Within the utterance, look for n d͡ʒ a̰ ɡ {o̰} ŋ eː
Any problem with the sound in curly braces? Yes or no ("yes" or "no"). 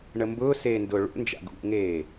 yes